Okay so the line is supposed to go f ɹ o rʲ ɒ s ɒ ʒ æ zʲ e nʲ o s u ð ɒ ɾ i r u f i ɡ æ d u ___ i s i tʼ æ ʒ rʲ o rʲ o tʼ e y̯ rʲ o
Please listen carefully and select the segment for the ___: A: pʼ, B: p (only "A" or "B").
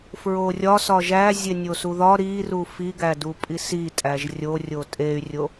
A